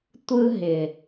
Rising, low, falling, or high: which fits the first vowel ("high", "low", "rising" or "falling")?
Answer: high